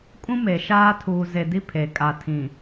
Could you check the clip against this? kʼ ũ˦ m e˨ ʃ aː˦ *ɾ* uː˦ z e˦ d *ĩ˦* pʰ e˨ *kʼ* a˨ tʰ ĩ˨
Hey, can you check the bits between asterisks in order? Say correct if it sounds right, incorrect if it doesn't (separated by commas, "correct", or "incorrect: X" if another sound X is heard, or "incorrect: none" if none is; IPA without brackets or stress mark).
incorrect: tʰ, incorrect: i˦, correct